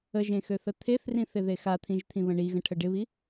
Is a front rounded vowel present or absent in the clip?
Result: present